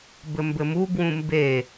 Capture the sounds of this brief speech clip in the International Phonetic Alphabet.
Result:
b ɘ m b ɘ m u b w ũ m b e

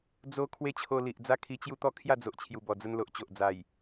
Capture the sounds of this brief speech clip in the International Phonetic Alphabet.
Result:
d͡z o˦ kʰ w e˦ t͡ɕʰ o˧ l i˨ ʔ d͡z a˥˧ kʰ i˧ t͡ɕ j u˦ t̪ ɔ˥˧ kʰ j a˥˧ d͡z o˨ ʔ t͡ɕʰ j u˨˩ b ɔ˨˩ d͡z ə˧ n l o˨ ʔ t͡ɕ o˨ ʔ d͡z a˨˩ j

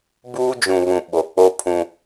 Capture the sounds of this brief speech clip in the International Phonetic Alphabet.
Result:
b uː˦ d͡ʒ ũ˨ β ũ˨ ɓ o˨ k͡p o˦ pʰ ũ˦

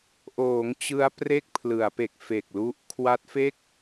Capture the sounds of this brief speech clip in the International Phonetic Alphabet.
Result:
ʔ oː˩˦ ŋ t͡ɕ ɯ˦˥ a̯ p r e˥˩ k̚ pʰ l ɯ˩˦ a̯ p e˨˩ k̚ f e˨˩ k̚ l u˦˥ ʔ kʰ w a˦˥ t̚ f e˥˩ k̚

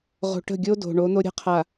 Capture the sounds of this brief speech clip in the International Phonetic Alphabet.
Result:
ʁ o̤˨ ʈ ə̤˦˨ ɡʲ o˦ d o̤˨ ɳ o˨˦ n̪ o˦ ɾʲ ə̤˦ qʰ a˨

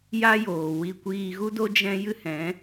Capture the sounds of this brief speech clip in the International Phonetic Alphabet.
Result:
j a˦ j oː˨ w i˧ kʷ iː˧ ɣ u˦ d o˦ d͡ʒ ɛ̃˦ j ɨ˦ h ɛ̃˨˦

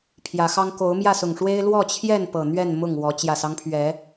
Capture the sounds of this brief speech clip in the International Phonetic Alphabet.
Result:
pʰ j ä˨˦ x ɑ˦ ŋ k o˨˦ ʊ̯ m j ä˥˨ s ʊ˨˩ ŋ ʂ w e˦ ɪ̯ l w ɔ˥˨ t͡ɕʰ j ɛ˥˨ n p ɤ˨˩ n̪ ɥ ɛ˥˨ n m ʊ˥˨ ŋ w ɔ˨˦ t͡ɕ j ä˨˩ s ɑ˦ ŋ pʰ ɥ ɛ˨˦

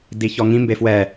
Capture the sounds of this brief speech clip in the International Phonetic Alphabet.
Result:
d i ç ɔ ŋ ĩ m b e f w ɛ

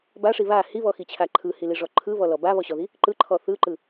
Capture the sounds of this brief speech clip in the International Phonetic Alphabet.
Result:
b a ʂ i β a h i β ɔ x i t͡ɕʰ a ǃʰ ɯ h i l i ʐ ɔ ǃʰ ɯ β ɔ l ɔ b a β ɔ ɕ ɔ ð i | ǃ ɯ ǃʰ ɔ θ ɯ ǃ ɯ

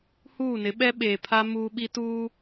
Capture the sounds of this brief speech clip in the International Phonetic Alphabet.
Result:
h uː˦˨ n ɪ˨˦ ɓ ɛ˦ ɓ eː˨ pʰ a˦ m uː˦ ɓ i˦ t uː˦

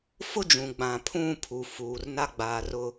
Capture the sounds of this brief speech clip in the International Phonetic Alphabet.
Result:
f ʊ˦ d͡ʒ ũ˨ ɡ͡b ã˨ pʰ ũ˦˨ pʰ u˨ f uː˨ r n a˦ ɡ͡b aː˨ r ʊ˦

